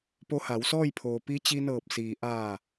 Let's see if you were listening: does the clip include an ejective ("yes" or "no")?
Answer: no